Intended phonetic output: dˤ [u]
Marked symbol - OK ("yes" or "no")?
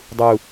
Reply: yes